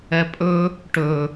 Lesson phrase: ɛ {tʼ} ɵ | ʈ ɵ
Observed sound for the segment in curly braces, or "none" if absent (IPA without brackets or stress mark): pʼ